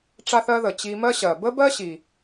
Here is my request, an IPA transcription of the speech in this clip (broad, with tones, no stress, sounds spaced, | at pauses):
ʈ͡ʂ a˧ θ ɜ˧ ð ə˩ t͡ɕ i˧ m ɜ˥ ɕ ɜ˩ b ə˥ b ɜ˥ ɕ i˩